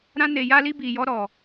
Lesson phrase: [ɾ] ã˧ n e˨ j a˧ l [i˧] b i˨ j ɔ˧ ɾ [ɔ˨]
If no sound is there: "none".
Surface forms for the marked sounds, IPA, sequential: ɾ, i˧, ɔ˨

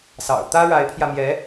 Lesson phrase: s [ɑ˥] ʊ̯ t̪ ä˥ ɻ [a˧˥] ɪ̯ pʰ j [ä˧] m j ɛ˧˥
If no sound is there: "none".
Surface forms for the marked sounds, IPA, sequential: ɑ̰˨˩, a˧˥, ä˧

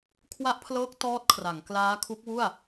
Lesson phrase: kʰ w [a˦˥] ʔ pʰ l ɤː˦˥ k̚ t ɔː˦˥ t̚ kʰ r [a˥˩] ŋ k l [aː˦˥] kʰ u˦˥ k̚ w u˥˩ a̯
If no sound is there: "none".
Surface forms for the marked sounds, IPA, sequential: a˦˥, a˩˦, aː˦˥

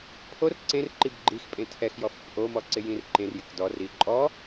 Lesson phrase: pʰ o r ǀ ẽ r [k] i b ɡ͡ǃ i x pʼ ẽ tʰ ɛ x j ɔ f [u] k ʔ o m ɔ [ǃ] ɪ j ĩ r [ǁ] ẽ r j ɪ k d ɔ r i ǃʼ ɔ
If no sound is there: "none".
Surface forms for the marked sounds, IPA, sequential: ǃ, ʊ, ǀ, ǃ

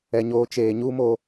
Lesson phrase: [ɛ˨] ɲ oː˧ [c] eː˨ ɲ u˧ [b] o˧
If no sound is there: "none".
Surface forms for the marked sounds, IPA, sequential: ɛ˨, t͡ʃ, m

